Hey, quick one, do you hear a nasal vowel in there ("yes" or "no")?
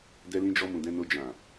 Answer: yes